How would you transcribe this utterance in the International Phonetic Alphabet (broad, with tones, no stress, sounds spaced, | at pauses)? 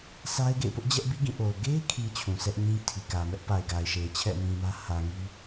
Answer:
s a˦ ɪ̯ ɡ ḛ˦˨ ɪ̯ p ʊ˦ ʔ d͡ʑ ɛ˦ ʔ b i˦ ɡ ĩ˦˨ ʔ o˨ ʊ̯ ɡ e˦ ɪ̯ kʰ i˨ t͡ɕʰ ũ˨ s ɛ˦ ʔ ɲ ĩ˦ tʰ i˨ k ä˨ m ɛ˦ ʔ p a˨ ɪ̯ ɡ a˨ ɪ̯ ʃ e˨ ɪ̯ t͡ɕʰ ɛ̰˦˨ m ĩ˨ m ä˦ h ä˨ ŋ i˦